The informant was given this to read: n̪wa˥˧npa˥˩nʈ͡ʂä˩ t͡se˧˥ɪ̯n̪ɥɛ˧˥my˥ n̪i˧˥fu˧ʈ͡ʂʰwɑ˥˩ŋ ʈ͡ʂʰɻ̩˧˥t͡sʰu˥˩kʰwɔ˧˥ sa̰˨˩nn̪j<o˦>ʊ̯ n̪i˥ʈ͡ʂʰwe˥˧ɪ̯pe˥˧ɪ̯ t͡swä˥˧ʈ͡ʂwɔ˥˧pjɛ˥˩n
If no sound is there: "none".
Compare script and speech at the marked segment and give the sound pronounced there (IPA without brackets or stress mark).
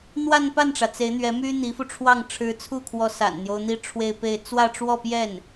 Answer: o˦